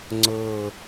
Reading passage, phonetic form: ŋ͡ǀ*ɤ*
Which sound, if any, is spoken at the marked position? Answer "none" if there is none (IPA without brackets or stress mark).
ɤ